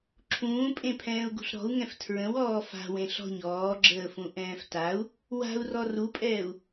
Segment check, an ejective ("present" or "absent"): present